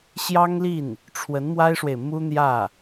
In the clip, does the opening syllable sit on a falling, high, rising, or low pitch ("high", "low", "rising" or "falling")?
high